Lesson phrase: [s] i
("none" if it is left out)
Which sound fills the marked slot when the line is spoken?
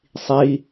sˤ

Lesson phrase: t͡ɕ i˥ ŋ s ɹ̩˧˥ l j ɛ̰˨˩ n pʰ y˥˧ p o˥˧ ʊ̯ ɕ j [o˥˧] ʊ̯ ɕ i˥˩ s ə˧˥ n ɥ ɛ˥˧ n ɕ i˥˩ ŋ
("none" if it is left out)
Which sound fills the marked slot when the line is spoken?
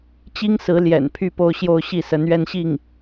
o˥˧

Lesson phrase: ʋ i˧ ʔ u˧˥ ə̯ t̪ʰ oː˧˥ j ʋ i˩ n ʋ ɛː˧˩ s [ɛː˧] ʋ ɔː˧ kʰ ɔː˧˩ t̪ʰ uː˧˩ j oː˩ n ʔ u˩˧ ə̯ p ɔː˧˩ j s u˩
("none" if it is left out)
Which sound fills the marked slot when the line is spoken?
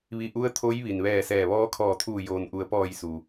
ɛː˧˩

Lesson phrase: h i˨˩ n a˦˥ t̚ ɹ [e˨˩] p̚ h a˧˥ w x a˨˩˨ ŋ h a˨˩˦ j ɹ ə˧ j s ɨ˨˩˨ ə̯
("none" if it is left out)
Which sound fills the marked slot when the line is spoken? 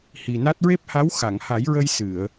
e˦˥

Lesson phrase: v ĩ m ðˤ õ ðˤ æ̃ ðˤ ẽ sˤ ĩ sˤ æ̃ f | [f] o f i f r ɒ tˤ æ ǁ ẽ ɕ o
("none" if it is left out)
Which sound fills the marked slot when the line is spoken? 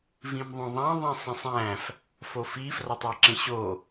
f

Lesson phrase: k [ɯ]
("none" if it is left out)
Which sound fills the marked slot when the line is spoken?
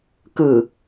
ɯ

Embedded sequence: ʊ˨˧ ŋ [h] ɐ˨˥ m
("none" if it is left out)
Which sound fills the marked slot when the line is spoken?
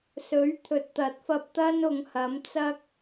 h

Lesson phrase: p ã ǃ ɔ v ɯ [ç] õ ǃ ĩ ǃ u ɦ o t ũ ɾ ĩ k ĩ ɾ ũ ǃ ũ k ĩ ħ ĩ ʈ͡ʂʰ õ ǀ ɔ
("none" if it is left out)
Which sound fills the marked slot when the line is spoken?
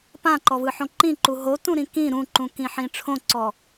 ħ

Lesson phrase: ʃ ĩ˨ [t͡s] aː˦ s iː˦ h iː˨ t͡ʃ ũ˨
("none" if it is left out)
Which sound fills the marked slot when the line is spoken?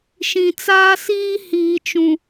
t͡s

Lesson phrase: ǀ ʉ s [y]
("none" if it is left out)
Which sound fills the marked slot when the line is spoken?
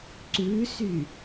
y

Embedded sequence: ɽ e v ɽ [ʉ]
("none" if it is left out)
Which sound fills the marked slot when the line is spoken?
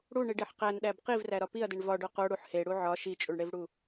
u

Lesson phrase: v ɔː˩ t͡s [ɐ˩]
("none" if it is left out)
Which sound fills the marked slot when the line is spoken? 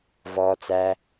æ˩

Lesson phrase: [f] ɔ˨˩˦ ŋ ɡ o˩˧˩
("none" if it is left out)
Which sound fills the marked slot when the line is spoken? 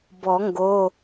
b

